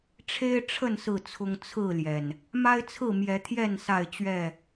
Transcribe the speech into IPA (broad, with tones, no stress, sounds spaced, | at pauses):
ʈ͡ʂʰ e˦ ɪ̯ ʈ͡ʂʰ ə˥˨ n s ɹ̩˥˨ t͡sʰ ʊ˦ ŋ t͡sʰ ɹ̩˥˨ l j ɛ˩ n | m a˦ ɪ̯ t͡sʰ ɹ̩˥˨ m j ɛ˨˦ t̪ʰ j ɛ˥˨ n s a˥˨ ɪ̯ t͡ɕ ɥ ɛ˥˨